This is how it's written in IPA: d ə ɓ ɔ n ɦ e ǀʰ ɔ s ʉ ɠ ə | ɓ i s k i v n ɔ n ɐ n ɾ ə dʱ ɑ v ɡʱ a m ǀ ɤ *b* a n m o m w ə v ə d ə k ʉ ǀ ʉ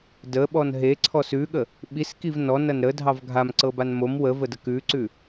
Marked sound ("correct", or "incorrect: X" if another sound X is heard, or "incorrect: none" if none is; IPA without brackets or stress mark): correct